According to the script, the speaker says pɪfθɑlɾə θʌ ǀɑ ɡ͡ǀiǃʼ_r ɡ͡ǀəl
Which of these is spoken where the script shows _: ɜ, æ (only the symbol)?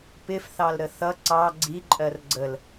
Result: ɜ